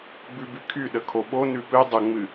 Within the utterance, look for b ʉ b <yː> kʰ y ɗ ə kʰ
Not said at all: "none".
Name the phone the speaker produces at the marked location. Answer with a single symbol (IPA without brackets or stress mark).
y